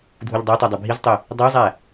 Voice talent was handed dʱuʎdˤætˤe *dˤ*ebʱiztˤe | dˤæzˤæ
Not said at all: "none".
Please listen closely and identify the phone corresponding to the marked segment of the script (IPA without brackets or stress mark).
dˤ